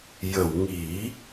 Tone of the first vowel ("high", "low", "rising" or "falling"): low